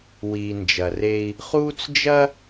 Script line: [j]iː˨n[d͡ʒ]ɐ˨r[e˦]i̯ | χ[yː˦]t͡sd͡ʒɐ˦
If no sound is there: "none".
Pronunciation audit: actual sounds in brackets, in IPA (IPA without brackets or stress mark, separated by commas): w, d͡ʒ, e˦, uː˦